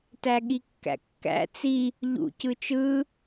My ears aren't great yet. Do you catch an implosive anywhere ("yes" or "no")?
yes